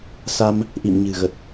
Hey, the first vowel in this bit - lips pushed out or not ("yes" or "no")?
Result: no